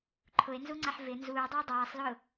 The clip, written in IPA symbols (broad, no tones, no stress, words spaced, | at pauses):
ǃʰʊe̯nzuŋ͡ǀaħ vɪ nzuːdˤɛe̯ dˤaːsˤlʊː